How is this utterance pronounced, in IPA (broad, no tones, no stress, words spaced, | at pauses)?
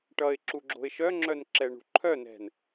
ʈʌɪ̯ǁuɡ͡ǁo̤ɪ̯ ʃœŋ͡ǁœnǁɛɳṳ ǃʰœnɛ̤n